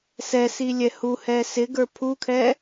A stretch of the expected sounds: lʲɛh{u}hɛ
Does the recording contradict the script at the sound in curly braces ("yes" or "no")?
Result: no